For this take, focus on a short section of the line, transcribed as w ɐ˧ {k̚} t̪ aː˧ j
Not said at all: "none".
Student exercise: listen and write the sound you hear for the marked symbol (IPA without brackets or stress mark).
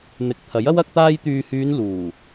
k̚